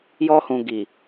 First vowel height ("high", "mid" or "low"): mid